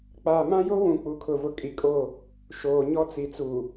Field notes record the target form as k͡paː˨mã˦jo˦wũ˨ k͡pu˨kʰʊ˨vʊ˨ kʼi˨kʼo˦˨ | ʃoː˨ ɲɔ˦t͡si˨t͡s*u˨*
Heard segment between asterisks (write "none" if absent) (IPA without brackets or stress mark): u˨